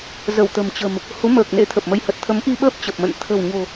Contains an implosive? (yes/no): yes